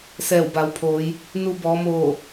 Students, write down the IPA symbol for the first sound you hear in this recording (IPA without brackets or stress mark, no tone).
s